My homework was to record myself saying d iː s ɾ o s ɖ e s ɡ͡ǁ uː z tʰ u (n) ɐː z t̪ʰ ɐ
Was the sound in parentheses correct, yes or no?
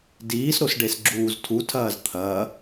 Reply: no